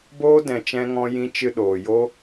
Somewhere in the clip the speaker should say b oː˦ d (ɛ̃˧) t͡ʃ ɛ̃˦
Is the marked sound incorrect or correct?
correct